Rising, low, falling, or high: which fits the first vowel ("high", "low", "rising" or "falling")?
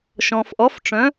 low